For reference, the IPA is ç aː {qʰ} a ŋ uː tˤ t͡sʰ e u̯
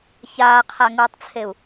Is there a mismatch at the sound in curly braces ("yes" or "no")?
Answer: no